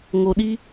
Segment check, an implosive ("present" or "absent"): present